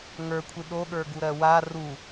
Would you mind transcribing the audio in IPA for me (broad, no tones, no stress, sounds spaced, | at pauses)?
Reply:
ŋ ə˞ kʷʰ i ɗ o ɠ ə˞ ɡ u ɾ ɜ w a r u